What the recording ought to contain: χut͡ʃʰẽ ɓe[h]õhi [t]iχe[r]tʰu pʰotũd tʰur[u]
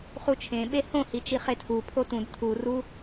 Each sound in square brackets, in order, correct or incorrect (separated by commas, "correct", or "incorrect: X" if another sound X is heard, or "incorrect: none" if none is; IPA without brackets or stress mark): correct, incorrect: t͡ʃ, incorrect: none, correct